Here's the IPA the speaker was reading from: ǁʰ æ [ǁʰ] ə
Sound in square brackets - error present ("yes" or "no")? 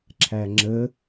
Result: yes